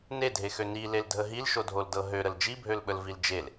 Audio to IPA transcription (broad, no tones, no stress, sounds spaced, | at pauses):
n e dʱ e x ø n i l e l dʱ ə ɦ i l ʃ o dʱ o l d ɤ ɦ ø ɾ ə l d͡ʒ i bʱ ø l ɓ ə l v i l d͡ʒ e l